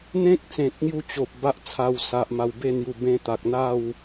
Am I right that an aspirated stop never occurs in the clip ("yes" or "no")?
no